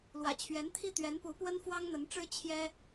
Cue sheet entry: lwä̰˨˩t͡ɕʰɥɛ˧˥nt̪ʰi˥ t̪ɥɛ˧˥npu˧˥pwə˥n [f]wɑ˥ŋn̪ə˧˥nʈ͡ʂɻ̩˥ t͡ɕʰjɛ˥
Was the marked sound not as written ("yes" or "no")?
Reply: no